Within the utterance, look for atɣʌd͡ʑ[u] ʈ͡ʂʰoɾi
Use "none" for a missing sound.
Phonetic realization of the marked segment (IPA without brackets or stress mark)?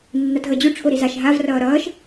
u